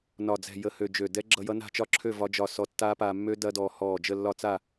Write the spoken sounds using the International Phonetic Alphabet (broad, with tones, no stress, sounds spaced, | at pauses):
n ɒ˧˩ d͡z ɛ̤˧˩ j ə˧˩ h ø˧˩ d͡ʒ ø˧˩ d ɛ˦˥ ɡ͡ǁ ʌ˧ j ʌ˦˥ n a̤˥˨ t͡ʃ ɒ˥˨ ǁʰ ø˥˨ v ɒ˦˥ d͡ʒ ɒ˥˨ s ɔ˧ tː aː˦˥ p aː˧ mː ø˦˥ d ɐ˦˥ d ɔː˧ h ɔː˧˩ d͡ʒ ə˥˨ lː ɒ˥˨ t͡s a˥˨